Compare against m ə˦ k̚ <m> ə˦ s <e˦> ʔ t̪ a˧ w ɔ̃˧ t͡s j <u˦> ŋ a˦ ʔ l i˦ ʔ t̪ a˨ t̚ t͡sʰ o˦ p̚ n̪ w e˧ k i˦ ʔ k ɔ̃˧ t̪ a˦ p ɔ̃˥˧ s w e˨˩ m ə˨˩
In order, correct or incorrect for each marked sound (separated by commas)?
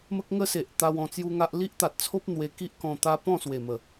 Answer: incorrect, incorrect, correct